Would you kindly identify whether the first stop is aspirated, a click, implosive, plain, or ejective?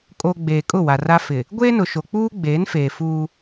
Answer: ejective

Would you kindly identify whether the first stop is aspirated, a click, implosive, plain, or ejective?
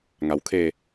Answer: aspirated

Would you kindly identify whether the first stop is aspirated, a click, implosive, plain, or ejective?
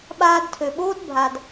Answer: implosive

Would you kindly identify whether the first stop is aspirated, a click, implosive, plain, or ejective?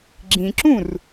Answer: click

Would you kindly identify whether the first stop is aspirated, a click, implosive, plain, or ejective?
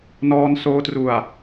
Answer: plain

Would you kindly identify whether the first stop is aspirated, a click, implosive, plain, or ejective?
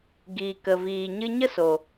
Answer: plain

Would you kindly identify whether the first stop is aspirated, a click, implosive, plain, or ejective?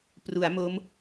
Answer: plain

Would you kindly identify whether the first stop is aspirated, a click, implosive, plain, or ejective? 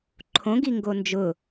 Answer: click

